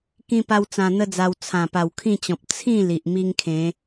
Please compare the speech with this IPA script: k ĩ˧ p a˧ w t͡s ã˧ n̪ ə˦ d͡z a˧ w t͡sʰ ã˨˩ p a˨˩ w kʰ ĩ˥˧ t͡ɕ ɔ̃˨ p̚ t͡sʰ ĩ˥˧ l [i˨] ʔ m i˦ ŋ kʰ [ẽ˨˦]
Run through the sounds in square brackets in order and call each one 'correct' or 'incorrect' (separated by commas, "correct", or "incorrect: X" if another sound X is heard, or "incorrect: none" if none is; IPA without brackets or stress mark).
correct, correct